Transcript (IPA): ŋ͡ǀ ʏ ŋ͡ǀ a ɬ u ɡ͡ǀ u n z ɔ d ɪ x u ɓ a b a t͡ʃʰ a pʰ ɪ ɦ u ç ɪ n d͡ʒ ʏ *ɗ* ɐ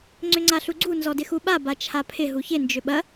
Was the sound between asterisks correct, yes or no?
no